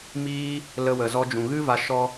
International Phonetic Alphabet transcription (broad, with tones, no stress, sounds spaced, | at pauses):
m iː˦ | l ə˦ w ə˧ z ɔ˦ d͡ʒ ũ˧ ɣ ɨ˦ v a˧ ʃ ɔ˧